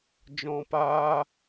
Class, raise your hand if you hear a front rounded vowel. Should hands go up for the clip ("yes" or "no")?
no